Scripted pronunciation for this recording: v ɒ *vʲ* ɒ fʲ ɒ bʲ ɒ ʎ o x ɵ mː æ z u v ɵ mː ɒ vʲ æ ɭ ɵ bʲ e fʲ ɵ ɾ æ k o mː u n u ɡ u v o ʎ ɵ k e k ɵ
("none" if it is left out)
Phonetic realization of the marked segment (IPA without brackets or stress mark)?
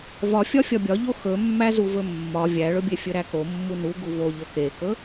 fʲ